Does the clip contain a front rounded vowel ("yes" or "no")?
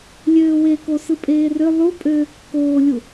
yes